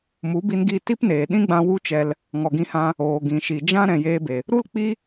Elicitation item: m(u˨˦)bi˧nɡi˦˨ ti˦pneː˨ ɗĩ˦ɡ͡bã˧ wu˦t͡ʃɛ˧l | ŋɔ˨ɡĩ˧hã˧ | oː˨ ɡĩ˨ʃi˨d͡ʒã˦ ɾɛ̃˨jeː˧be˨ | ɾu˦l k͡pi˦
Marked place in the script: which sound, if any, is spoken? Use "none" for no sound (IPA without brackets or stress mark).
u˨˦